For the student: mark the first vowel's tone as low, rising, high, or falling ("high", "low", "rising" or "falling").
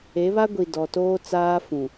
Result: rising